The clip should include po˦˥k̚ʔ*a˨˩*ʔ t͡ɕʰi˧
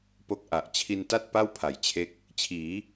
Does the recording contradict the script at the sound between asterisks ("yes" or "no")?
no